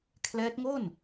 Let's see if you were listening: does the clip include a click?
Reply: no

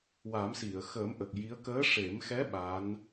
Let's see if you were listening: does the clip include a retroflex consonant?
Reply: yes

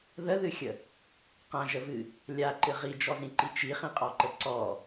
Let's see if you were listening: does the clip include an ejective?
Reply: yes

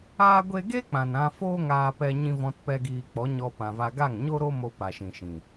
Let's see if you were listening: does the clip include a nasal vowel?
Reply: yes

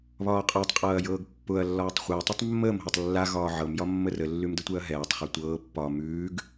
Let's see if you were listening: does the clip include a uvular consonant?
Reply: yes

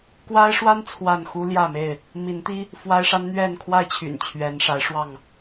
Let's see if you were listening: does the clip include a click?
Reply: no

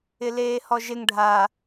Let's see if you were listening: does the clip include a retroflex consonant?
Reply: yes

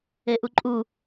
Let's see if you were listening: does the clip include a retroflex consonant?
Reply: no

